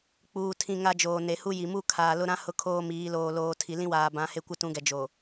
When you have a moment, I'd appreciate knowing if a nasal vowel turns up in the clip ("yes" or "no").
yes